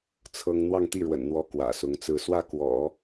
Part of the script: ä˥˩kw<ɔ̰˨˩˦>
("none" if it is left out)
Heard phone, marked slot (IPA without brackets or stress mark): ɔ̰˨˩˦